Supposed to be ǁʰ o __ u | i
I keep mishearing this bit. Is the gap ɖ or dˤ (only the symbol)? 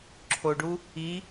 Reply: ɖ